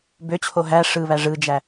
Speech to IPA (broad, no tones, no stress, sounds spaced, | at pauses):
b ø t͡ɕʰ o ɦ æ ʂ ɯ β æ ʐ ɯ d͡ʒ æ